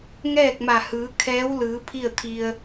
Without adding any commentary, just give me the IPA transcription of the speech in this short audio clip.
ŋ ɛː˥˨ k̚ m a˧˩ h ɯː˩˧ kʰ ɛː˧˥ w l ɯː˩˧ pʰ i˥˨ ə̯ t̪ʰ i˧ ə̯

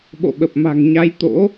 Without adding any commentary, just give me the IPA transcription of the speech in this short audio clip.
ɓ o̰˧˨ ɓ ə˨˩ p̚ m a̤˨˩ ŋ ɲ a˨˦ j t̪ o̰˧˥

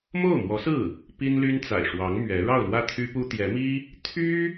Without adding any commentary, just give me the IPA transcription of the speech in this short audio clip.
m o˥˩ ʊ̯ m w ɔ˧˥ s ɹ̩˥˩ | p i˥ n l y˥ n t͡s a̰˨˩ ɪ̯ ʂ w ɑ˧˥ ŋ m ɥ ɛ˧˥ ɻ ɑ˥˧ ʊ̯ l w ä˥˩ t̪ʰ y˥ p u˥ t̪ j ɛ˧˥ m i˥ | t̪ʰ y˥

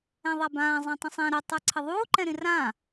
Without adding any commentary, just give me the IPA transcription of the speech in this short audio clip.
ɛ̃ ðˤ a b ãː zˤ ĩ tˤ ə̃ sˤ ɛ̃ ɾ ə tˤ ə˞ ǀʰ ə ðˤ uː ǃ ɛ̃ ɾ ĩ r ãː

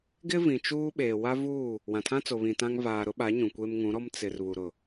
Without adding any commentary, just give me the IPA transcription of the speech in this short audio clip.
ɡ ɪ˦ v ĩ˨ t͡ʃ uː˦ ɓ eː˨ w a˦ v uː˦˨ | w ã˨ tʰ ã˦ t͡s o˨ β ĩ˨ t ã˦ ŋ v aː˨ ɾ ʊ˦ ɓ a˨˦ ɲ ũ˨ kʷ eː˦ m ŋ ũ˨˦ ɾ ɔ˦ m t͡s ɪ˨ r β u˨ ɾ ʊ˨

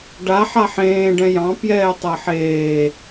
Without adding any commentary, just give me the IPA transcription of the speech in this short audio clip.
ɖ a ħ a ħ ẽː ɖ ɛ̃ j ɑ̃ p j ɛː tˤ ɐ ħ eː

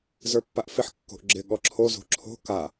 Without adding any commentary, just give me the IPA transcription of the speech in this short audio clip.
z ə˞ pː a ʔ f ɪ ħ kː o̤ ʔ ɡ͡ǁ ɪ ɠ ɔ ǁʰ o z o̤ ǁʰ o̤ k a

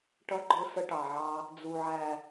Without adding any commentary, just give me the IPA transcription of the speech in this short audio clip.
ʈ ʌ˦ ɡ͡ǃ ʊ˦ s ə˦ ʈ ɑ˨ ʕ ɑ˦ | d͡z u˨ ʕ æ˨

